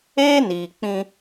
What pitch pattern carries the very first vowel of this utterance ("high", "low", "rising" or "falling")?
high